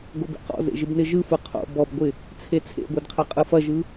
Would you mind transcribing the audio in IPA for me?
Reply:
ɡ o b ḛ q ɔ̰ z ḛ ʒ ɪ b n ɪ ʒ ɯ f ɯ qʰ o̰ b ɔ b ɡʷ ɪ | t͡sʰ e t͡sʰ ḛ ɡʷ e d qʰ e qʼ ɯ f ɐ ʒ ɯ

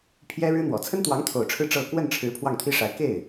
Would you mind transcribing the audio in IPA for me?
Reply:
pʰ j ɛ˥ ɻ ɻ̩˥ n̪ w ɔ˨˩ t͡sʰ ə˥ n t̪ w ɑ˧˥ ŋ t̪ʰ o˨˩ ʊ̯ ʈ͡ʂʰ ɻ̩˥˧ ʈ͡ʂ ɤ˥˧ k w ə˥˩ n ʈ͡ʂʰ ɻ̩˧˥ pʰ w ɑ˥˩ ŋ t̪ʰ i˥ ʂ a˧˥ ɪ̯ k e˥˩ ɪ̯

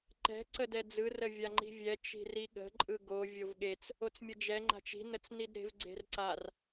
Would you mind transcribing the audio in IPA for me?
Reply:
ǃ ɛ̤ ǀ ə d ɛ d͡z ɯ r ə vʲ a ŋ͡ǃ i̤ vʲ ɛ t͡ʃ i̤ r i ɠ ə̤ ǃʼ ɯ ɡ o vʲ o v ɠ e t͡s | o t͡s mʲ ə d͡ʒ ɛ ŋ͡ǃ a̤ t͡ʃ i̤ n ə t͡s n i d ɾ e̤ v ɡ͡ǀ e̤ r ǀ a r

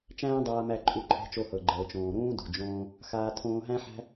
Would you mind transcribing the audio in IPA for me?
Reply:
t͡ʃ æ̃ː˥ dˤ aː˧ m æ˧ ǃʼ u˧ ǃʰ ɛ̤˧ t͡ʃ o˧ h ɤ˩ ɡ͡ǃ ɤː˩ t͡ʃ õː˩ ɾ ũː˥ d o̤˩ d͡ʒ õː˧ | x aː˧ tʰ õː˧ ɦ æ̃˥ ħ æ̤˥

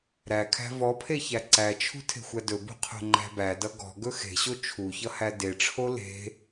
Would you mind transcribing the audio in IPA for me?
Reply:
ɾ æ kʰ æ̤ v ɔ pʰ e ç æ ǀ æ t͡ʃʰ ṳ tʰ e̤ xʷ æ d ɵ b ṳ qʰ o̤ ŋ͡ǃ æ̤ b æ d ʌ ɡ ɔ̤ ɡ ɵ x e̤ ɕ o t͡ʃʰ u ç ʌ h æ d e ʈ͡ʂʰ o l e̤

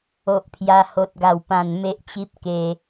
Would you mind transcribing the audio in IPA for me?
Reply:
o˦ ʔ pʰ j a˦ h o˦ t̚ ɡ a˥˧ w p ã˥˧ n m e˦ ʔ t͡ɕ i˦ p̚ k e˧

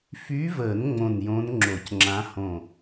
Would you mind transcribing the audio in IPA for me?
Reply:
f y˧˥ v əː˨˩˦ n ŋ͡m õ˧˩ n j õ˧˥ n ŋ͡ǁ o˨˩˦ c ŋ͡ǁ ã˧˥ h õ˧˩

